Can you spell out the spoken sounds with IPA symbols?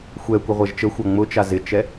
xʷ ɛ kʷ ə ʁʷ ɛ ʒ t͡ʃ ə xʷ a ŋ͡m ʊ t͡ʃ a z ɪ t͡ʃ ɛ

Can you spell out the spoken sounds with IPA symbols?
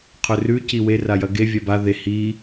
qʰ ɵ r ʉ c i w e r a j ɐ ɡ e vʲ a b a ð e h i

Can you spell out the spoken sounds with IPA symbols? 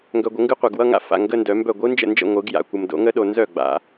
ŋ ɡ œ˨ ɡʷ ə˨˩˦ ŋ ɡ ɯ˧˥ qʷ a˨ ɡ w ʌ˧˥˧ ŋ a̰˥˩ f a̰˨ ŋ ɡ ə˧˥˧ n d œ˨˩˦ m b œ˥˩ ɡʷ ɯ˧˥ n d͡ʒ ə̰˥˩ n d͡ʒ ə̰˥˩ ŋʷ ɯ˨˩˦ ɡ j a̰˨ kʷ ə˨ m d o̰˨˩˦ ŋ ə˧˥ ɗ o˨ n z œ˥˩ ɡ͡b a̰˨˩˦

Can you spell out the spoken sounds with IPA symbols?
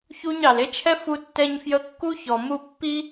ç u˥ ɲ ɑ˩ l e˥ t͡ʃʰ ɛ˥ f u˥ tː ɛ˥ ɲ f j ə˥ kː u˥ ç ɔ˩ m u˥ pː i˥

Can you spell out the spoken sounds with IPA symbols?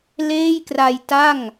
l eː˥˩ j k r a˧ j t a˥˩ ŋ

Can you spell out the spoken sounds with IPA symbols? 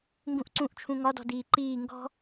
ŋ ɡ ũ ʔ ǀ ũ ʔ t͡ʃʰ ũ ŋ ɒ d ɔ̤ d iː ǃ iː ŋ ɡ ɔ̤

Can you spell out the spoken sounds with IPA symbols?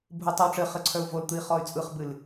bʱ ɯ tˤ ɘ w ʈ͡ʂ ɘ χ ɘ ǀʰ œ u̯ v o l t̪ ɯ i̯ χ ɔ y̯ t͡sʼ ɯ χ b ɨ l

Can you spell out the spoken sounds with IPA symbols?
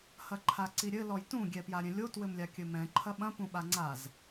h ɐ ǃʰ a ǀ i ɾʲ ɘ l ɔ j t ũ ɡʲ ɛ p j a ɾʲ ɛ̃ lʲ o t w ɘ m lʲ a kʲ ɘ m ɛ̃ ǃʰ ɐ ɓ ɐ̃ p ũ ɓ a ŋ͡ǀ a z

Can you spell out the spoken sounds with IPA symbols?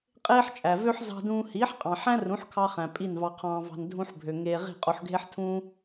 qʼ eː˥ ħ t͡ʃʼ æ˩ v ø˥ ħ z ɑ̤˧ d ũː˧ h iː˩˥ ħ qʼ ɑ̃˩ ħ æ̃˥ r ũ˩˥ ħ kʰ ɑ˧ χ æ̃˩ pʼ i˥˩ n v ɑ˧ qʰ ɑ̃ː˧ v ɑ̤˧ n dʱ ũ˧ ħ bʱ ø˩ ŋ eː˧ ʁ i̤˥˩ qʼ o˧ ħ ɡʱ e˥ ħ tʰ ũː˥

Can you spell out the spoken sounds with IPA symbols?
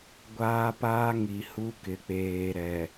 ɡʷ aː˦ p aː˦ ŋ i˨ h u˦ k ɪ˨ k͡p eː˨ ɾ ɛ˨

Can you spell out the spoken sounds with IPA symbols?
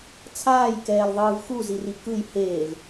t͡sʰ aː j k ɛː l ðˤ ɯː v x u z i r i k ɯ j h eː v

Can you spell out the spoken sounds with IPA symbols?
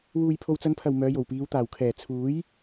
w uː˨ j pʰ o˨ w t͡s ɐ˨˧ n pʰ ɐ˨˩ w m œː˨˧ j o˨˩ w p iː˨˧ w t̪ aː˨˩ w kʰ ɛː˨˩ t͡sʰ uː˨˥ j

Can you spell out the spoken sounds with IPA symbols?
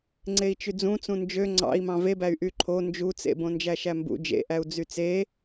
ŋ͡ǀ e i̯ t͡ʃ y d͡z ũ t͡s ũ n d͡ʒ ø ŋ͡ǀ ɑ̰ i̯ m ɑ̃ v e b æ y̯ ʔ y ǃʰ o n d͡ʒ u t͡s ḛ b õ n d͡ʒ æ ʃ æ m b ṵ d͡ʒ ḛ ʔ æ u̯ d͡z y t͡s e

